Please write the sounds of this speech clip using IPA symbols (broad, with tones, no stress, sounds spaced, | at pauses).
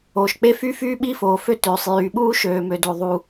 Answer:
oː˩ ʃ k͡p e˥ f y˥ f yː˥ ɓ i˥ f oː˩ f ø˥ t øː˩ sˤ j yː˩ ɓ uː˥ ʃ øː˩ m ø˩ d o˩ ðˤ u˩